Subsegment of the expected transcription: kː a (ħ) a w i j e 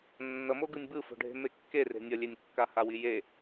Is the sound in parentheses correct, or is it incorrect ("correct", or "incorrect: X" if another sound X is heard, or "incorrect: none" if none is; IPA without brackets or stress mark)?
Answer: incorrect: h